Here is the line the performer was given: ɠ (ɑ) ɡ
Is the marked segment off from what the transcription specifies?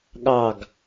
no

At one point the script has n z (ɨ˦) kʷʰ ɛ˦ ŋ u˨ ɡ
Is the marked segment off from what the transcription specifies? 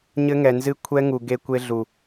no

